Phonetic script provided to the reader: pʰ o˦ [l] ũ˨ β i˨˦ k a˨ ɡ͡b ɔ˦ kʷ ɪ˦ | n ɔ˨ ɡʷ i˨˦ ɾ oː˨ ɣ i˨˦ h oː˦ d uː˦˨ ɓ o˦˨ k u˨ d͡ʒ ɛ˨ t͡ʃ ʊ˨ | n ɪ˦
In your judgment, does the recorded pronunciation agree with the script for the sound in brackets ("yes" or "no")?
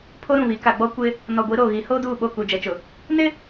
no